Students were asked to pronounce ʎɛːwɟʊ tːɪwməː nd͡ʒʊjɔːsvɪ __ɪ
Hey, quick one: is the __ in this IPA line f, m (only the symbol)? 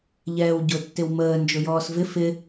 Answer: f